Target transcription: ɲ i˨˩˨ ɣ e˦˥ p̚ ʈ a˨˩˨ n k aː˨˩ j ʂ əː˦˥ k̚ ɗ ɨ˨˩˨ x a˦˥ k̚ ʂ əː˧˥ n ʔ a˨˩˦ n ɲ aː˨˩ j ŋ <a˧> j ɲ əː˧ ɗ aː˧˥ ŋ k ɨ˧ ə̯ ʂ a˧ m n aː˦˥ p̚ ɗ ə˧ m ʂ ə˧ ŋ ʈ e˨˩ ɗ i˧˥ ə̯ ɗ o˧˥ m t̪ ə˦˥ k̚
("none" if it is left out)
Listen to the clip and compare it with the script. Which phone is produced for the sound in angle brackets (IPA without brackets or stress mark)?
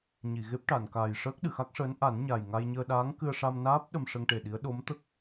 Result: a˧